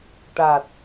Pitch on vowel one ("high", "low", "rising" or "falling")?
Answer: low